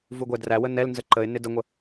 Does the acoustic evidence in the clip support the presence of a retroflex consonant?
no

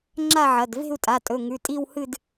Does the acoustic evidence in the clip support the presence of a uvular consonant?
no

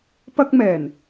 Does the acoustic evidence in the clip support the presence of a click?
no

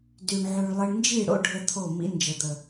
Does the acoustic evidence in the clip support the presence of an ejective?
no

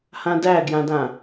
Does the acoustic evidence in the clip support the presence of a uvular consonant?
no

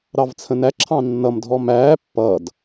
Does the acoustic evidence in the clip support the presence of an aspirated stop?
yes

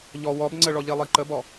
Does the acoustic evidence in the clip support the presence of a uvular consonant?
no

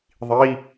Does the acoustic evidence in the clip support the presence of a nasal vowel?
no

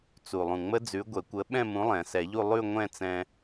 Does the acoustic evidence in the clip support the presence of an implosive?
yes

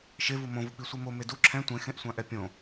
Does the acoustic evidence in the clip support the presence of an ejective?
no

